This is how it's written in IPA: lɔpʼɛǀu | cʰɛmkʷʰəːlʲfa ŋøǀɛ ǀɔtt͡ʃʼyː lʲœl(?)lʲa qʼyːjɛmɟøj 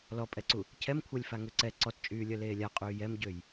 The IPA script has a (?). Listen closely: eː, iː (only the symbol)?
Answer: eː